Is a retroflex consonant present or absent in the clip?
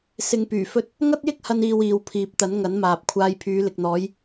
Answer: absent